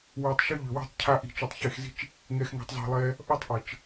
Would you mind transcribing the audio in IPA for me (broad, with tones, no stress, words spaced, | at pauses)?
wi˨tˤʃʏ˦ʎʏ˨wi̤˦˨tˤ cʰa˧ʔi̤˨ t͡ʃu˨tˤçe˦˨xzi̤˦t͡ʃ | ŋɛ˧xŋɛ̤˧tˤzˤi̤˨lˠɛ˦ | ʔɔ˦tˤʔə˨t͡ʃ